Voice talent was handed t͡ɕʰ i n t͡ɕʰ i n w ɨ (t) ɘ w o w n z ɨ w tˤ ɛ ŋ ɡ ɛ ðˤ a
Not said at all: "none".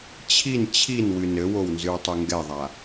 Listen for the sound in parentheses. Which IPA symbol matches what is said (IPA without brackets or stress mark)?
n